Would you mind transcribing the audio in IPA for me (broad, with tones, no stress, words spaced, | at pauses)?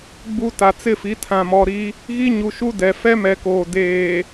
ɡ͡bu˦ ta˨t͡sɪ˦˨fi˨˦ tʰã˨mɔ˨ɾi˦ | ɣi˦ɲu˨ʃu˦ dɛ˨fɛ˦mɛ˨koː˨ deː˨